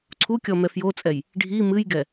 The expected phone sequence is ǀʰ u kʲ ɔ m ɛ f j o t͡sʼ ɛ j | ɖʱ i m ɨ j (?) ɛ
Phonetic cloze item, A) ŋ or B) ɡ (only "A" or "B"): B